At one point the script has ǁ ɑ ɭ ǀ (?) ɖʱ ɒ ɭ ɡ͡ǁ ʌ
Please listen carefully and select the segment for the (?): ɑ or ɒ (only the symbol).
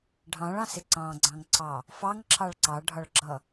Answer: ɑ